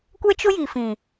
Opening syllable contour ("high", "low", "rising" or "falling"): high